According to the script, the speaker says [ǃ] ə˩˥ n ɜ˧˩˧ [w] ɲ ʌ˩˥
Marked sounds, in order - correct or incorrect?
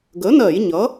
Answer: incorrect: ɡ, incorrect: j

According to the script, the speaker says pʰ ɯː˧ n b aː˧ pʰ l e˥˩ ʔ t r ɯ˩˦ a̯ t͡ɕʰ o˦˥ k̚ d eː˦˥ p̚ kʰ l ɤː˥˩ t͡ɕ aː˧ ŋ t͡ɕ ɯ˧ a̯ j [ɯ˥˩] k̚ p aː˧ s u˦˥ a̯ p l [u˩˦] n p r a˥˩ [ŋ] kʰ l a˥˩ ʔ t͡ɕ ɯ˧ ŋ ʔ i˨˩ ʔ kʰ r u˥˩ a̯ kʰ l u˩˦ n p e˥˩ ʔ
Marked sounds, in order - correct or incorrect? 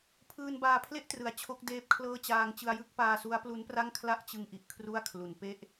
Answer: correct, incorrect: u˦˥, correct

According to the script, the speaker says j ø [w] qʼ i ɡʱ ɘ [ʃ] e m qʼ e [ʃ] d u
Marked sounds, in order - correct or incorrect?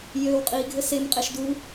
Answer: correct, incorrect: s, correct

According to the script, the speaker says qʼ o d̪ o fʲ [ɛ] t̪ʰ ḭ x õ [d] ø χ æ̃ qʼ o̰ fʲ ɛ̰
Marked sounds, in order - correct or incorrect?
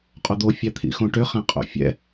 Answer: incorrect: æ, incorrect: ʈ

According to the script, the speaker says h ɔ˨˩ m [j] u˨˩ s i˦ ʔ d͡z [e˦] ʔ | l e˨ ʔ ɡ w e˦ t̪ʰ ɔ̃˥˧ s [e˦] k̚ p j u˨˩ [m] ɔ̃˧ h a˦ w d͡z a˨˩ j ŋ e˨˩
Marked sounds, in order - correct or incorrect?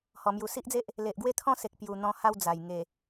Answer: correct, correct, incorrect: e˨, incorrect: n̪

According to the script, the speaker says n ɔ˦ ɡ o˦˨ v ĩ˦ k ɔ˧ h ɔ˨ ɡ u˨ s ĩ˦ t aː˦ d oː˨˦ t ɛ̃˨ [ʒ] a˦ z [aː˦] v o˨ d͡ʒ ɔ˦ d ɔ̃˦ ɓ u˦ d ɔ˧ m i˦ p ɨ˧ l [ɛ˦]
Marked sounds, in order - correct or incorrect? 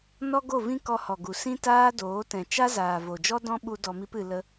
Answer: incorrect: t͡ʃ, incorrect: aː˨, incorrect: ə˦

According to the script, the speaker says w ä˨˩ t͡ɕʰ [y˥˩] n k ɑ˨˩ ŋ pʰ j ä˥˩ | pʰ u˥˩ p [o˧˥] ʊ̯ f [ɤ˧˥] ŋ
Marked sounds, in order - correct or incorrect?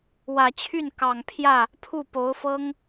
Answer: correct, correct, incorrect: ɤ˥

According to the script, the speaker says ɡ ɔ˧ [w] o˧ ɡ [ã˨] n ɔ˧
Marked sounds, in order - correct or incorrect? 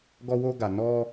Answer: correct, incorrect: a˨

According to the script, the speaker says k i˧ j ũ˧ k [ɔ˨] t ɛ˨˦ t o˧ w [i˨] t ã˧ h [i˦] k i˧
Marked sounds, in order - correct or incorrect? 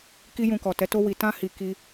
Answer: correct, correct, incorrect: i˨

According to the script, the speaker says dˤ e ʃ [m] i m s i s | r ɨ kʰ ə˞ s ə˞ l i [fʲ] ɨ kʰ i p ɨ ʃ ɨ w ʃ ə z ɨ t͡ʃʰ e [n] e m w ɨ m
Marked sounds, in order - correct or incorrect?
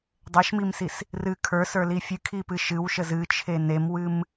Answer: correct, correct, correct

